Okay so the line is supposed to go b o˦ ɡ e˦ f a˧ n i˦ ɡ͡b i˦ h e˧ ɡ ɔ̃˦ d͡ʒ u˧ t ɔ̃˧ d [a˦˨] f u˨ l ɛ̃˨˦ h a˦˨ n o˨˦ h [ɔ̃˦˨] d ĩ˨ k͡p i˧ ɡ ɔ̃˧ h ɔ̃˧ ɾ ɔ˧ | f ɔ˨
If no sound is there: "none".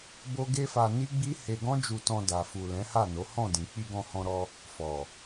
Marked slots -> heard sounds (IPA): a˨, ɔ̃˦˨

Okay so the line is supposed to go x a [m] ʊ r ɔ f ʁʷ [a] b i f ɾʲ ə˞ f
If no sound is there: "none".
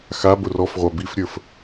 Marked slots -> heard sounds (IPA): b, a

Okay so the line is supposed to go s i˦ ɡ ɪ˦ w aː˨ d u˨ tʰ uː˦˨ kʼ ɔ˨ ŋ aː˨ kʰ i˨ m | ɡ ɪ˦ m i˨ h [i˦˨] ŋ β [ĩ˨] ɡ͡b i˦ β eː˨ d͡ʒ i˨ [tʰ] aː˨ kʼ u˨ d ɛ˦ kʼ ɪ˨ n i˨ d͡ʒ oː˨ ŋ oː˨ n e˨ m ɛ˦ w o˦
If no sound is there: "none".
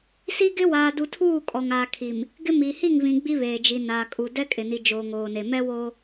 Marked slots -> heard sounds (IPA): i˦˨, ĩ˨, n

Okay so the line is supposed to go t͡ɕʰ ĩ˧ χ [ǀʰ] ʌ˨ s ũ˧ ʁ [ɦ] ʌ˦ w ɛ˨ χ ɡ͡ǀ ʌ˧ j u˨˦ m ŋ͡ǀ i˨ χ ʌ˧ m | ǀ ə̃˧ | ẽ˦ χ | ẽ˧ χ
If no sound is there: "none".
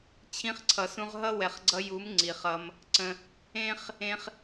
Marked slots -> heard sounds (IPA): ǀʰ, ɦ

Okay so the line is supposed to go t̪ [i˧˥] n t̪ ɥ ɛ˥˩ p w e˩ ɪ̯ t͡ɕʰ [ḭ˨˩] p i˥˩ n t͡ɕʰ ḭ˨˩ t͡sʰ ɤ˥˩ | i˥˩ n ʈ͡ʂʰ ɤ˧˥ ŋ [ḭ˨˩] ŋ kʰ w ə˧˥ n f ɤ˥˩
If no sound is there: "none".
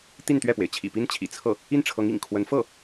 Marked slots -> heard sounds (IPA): i˥˧, ḭ˨˩, ḭ˨˩

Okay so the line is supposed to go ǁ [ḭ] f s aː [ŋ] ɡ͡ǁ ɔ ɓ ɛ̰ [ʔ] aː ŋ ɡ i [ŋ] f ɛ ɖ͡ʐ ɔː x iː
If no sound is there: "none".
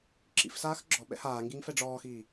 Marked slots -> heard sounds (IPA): ḭ, x, h, ŋ

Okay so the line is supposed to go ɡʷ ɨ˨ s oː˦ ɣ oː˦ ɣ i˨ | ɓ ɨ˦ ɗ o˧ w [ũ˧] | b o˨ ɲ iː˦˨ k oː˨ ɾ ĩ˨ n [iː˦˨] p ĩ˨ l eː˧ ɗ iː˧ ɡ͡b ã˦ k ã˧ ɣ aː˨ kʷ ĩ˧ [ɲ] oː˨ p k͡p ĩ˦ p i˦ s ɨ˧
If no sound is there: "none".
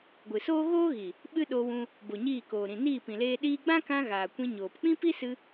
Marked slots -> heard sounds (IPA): ũ˧, iː˦˨, ɲ

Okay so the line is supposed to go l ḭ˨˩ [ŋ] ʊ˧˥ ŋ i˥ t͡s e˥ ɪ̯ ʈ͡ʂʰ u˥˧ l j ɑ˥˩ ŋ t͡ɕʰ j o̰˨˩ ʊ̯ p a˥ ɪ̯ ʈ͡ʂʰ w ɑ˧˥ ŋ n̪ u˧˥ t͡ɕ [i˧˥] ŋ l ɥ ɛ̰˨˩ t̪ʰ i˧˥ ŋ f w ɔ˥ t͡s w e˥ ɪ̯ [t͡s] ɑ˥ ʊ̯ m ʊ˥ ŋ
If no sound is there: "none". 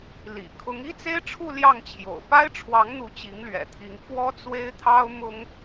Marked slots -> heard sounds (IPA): kʰ, i˧˥, t̪ʰ

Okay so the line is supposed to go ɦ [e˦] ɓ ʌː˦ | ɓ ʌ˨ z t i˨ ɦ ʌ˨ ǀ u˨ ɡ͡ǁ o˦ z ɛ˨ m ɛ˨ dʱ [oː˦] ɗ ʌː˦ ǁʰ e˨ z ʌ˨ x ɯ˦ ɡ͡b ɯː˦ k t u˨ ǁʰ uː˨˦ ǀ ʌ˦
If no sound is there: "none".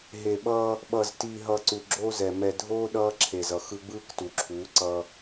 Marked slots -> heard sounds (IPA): e˨, oː˦

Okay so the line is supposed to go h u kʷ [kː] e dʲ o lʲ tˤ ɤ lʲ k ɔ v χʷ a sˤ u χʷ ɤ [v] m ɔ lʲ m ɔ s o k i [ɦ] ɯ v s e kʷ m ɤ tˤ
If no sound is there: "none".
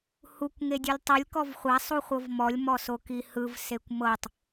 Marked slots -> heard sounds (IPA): ŋ, v, h

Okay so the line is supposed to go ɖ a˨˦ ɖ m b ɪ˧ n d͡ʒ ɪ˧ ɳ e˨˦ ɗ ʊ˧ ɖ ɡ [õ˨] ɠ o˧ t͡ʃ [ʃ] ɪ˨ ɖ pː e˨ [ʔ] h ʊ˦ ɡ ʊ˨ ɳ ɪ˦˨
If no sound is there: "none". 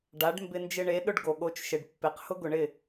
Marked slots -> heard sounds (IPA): o˨, ʃ, q

